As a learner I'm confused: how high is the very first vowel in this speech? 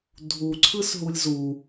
high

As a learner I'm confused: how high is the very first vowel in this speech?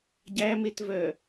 low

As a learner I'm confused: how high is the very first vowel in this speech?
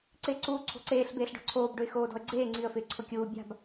high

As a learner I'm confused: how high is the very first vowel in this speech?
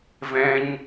mid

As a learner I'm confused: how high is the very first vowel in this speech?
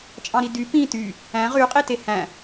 low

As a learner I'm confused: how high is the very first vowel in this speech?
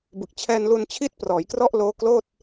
high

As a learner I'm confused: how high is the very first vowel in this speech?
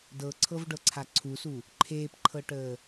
mid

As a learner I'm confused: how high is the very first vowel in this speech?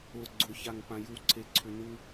high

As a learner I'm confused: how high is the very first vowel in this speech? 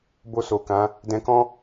mid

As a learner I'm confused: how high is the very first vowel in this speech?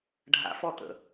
low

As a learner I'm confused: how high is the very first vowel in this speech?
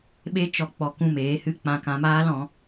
mid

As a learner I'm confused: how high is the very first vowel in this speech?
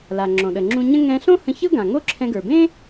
low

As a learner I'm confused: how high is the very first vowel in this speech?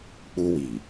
high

